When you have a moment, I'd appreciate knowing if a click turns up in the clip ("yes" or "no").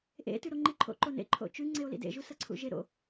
yes